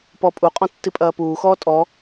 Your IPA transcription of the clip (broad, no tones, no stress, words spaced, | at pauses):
pɔpʼuqʼɔ̃ tːipʼɐːpuːxɔː tʼɔ